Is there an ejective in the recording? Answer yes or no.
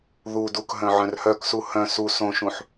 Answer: no